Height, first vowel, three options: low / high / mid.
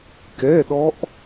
mid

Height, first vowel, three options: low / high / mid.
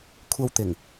low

